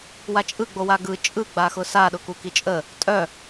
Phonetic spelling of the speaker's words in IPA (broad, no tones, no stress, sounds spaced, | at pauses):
w a t͡ʃʼ ɯ ɡ͡b o w a ɡ ɯ t͡ʃʼ ɯ ɡ͡b a x ʊ s a ɗ ʊ k u k i t͡ʃʼ ə | tʼ œ